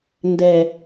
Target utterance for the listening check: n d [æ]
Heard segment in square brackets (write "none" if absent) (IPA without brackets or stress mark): ɛ